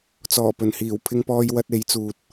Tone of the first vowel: low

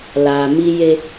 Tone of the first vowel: low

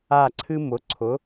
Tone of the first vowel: falling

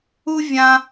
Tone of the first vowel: high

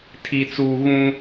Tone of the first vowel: low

